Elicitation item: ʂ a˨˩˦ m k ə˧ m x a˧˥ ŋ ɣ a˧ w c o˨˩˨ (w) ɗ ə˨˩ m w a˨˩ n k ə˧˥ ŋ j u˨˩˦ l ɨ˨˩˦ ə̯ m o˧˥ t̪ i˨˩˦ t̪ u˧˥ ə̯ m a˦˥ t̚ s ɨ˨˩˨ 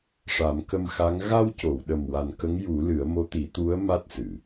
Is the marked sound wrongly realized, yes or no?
no